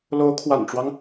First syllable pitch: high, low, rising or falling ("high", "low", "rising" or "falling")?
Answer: rising